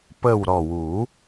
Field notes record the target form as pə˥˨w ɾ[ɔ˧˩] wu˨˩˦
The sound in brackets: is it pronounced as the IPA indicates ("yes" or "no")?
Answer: yes